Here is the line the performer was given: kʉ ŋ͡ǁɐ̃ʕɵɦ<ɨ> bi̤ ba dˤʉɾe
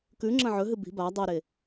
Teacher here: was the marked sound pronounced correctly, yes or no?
yes